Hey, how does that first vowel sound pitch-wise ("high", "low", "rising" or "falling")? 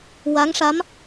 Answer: rising